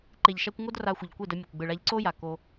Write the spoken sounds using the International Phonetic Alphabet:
ǃe˨ʎʃa˧kʷ ŋo˦dra˧xʷə˨ʎkʷe˦˨d ə˧mʲə˨kʷ ɡ͡bɯ˨ɭa˧ʎ ǀo˦ja˨ ko˧

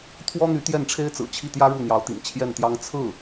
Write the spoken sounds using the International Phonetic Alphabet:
t̪ʰwɔ˥n̪y˧˥ t̪jɛ˥˩nʈ͡ʂʰe˥ɪ̯ t͡sɹ̩˨˩t͡ɕʰi˥˩t̪jä˥ ɻu˥˩n̪jɑ˧˥ʊ̯t̪ḭ˨˩ŋ t͡ɕʰjɛ˥˩nt̪jɑ˥ŋ t͡sʰɹ̩˥˩

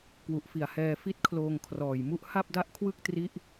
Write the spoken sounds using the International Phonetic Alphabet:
kwu˨˩ʔfi˨˩a̯hɛː˧ fi˦˥t̚kʰloː˧ŋkʰrɔː˨˩jmu˦˥ʔ ha˥˩p̚da˥˩ʔkʰwɯ˥˩k̚tri˦˥ʔ

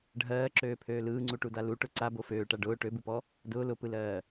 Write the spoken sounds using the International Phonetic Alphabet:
ɖʱɜːǁøːpʰøː lɯːŋ͡ǀuʈuda luʈʊ ǀabo føːʈa ɖʊː ʈøbupɔ | dʊː lʊpɯlɜː

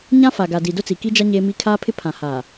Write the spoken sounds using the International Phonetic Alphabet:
ɲã˦fa˨ɡa˨di˨ dʊ˦t͡si˨ki˦d͡ʒa˦ ɲe˦mi˦ kʰaː˦pʰɪ˦pʰã˨ haː˨

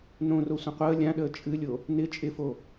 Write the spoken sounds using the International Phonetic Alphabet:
nõro sʷə̃qʷəː lʲãɗəː t͡ʃʼɨlʲo | nɪ t͡ʃʼɪfo

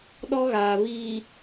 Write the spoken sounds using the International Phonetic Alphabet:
ɗɔ˦ɣaː˨ βiː˨

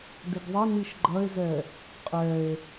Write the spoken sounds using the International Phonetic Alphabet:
dɪɡðˤɐniʃ ɡ͡ǃɐe̯zɛ | qʼɛe̯

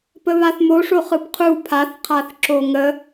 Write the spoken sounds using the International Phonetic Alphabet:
pəβaθmoʂo χɯpqʰu pʰaθqʰaθ ǁoŋə

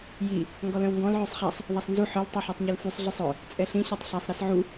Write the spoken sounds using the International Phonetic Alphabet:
ji | ŋɡɔlœ̃wŋɡɔ̃l ʕøsˤχasˤ | ðˤasˤnzu ħœl tˤuħœtˤɲolfysˤ ɮœsˤœ | t͡sʼɛɬĩ ɕatˤɬasˤ ɾisʕu

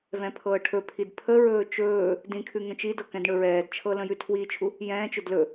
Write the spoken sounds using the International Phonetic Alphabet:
vɛ̃pʰɤːʈʰɵpʰid pʰəɹɵː t͡ʃɵː | dĩkʰʉ ŋə̃t͡ʃidɤ kɛ̃dɳɵɹɛːdt͡ʃʰɤ lə̃jʉtʰwiːt͡ʃʰu | jɛ̃ːt͡ʃɵd lɵ

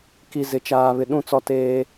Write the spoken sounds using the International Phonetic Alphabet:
ki˨ zɪ˨t͡ʃaː˨βɪ˨ ɗũ˦˨t͡sɔ˦ teː˦

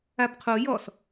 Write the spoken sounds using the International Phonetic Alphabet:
abqʰo jɔs

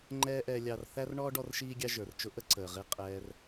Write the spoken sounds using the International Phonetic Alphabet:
ŋ͡ǃɛː˥ ʔɛː˧ lʲɑ˧r θæ˥r ɳɔ˥ ɖɔ˥rʃiː˥ɡʲɑ˥ ʒə˞˩rt͡ʃʊ˥ ʔə˥ǀəː˩ʁi˧ qʼɛː˧r

